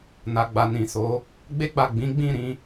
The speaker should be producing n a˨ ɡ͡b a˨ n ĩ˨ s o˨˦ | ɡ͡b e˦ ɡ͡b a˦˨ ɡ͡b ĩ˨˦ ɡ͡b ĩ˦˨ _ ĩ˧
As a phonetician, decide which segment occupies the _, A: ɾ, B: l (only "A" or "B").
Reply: A